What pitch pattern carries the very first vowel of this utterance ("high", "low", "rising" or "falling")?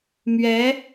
rising